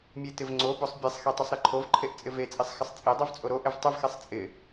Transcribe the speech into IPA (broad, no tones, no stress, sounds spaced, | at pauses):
mʲ e t ɪ v ŋ͡ǀ o b o sˤ bʲ e sˤ x i tˤ o sˤ ɾ i ǃʰ o v ǃʰ e ʔ t͡sʼ ɪ v e t͡sʼ i sˤ x ɪ sˤ t͡sʼ i dˤ o v t͡sʼ o ɾ o ʔ ɪ v tˤ ɪ v x e sˤ t͡sʼ ɪ